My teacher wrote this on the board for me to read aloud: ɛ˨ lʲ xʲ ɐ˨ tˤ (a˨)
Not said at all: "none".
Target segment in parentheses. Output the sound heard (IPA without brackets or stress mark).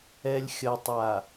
a˨